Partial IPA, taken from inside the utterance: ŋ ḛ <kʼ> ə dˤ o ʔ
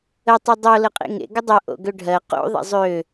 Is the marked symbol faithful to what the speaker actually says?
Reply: no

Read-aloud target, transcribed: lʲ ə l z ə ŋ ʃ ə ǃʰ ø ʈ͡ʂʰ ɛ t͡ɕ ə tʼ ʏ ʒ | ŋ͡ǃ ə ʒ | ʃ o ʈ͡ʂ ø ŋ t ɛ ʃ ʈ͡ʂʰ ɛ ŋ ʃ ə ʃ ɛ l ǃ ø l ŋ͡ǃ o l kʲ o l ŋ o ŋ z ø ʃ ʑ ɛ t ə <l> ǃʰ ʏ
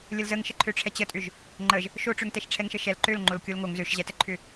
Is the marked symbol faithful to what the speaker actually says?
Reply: no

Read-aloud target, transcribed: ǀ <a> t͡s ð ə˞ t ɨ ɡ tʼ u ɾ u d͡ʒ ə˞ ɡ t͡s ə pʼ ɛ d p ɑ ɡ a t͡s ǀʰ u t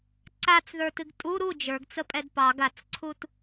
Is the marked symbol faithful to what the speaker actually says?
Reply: yes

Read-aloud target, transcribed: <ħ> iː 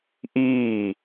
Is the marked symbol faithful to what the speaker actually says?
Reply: no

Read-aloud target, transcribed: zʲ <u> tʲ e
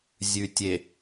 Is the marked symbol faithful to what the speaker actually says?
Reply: no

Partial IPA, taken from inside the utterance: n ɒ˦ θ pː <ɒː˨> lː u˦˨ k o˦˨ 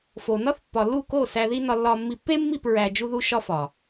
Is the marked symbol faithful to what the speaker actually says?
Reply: no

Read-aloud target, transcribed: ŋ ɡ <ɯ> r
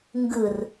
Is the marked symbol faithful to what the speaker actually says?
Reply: yes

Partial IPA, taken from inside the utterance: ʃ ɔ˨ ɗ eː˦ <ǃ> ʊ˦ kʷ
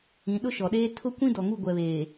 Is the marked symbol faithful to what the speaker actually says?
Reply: no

